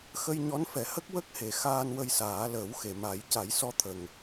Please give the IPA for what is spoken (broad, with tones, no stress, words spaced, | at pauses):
xə˧jɲɔ˧˥nfɛ˨˩˦hə˦˥k̚ wə˦˥k̚he˨˩ xaː˧nwə˧jsaː˨˩˦ ləː˨˩˦wxe˨˩˨ma˨˩˦j ca˨˩˦jsɔ˧˥t̪ʰə˨˩ŋ